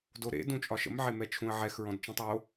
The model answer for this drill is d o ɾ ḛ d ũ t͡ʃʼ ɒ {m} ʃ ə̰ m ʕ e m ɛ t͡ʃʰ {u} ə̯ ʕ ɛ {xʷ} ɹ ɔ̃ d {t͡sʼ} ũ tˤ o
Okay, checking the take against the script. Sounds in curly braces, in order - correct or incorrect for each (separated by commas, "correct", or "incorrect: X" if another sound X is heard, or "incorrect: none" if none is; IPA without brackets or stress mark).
incorrect: none, incorrect: ũ, incorrect: x, incorrect: t͡ʃ